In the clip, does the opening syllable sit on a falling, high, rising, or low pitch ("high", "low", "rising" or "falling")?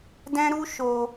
high